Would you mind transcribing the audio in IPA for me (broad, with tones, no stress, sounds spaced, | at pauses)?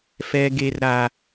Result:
f ɛ˦ ɡ e˦ r ɾ a˦